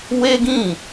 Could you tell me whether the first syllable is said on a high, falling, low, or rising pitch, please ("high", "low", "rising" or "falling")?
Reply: high